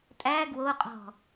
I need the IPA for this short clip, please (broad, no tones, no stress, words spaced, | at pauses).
tʼæ ɡwoqʼɔ̤